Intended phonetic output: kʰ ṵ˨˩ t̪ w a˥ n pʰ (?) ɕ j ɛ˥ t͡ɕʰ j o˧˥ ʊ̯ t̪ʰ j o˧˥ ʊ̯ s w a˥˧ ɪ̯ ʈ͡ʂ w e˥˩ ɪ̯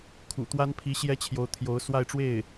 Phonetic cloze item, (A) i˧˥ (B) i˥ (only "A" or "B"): A